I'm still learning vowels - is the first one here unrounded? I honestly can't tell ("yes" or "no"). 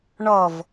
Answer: no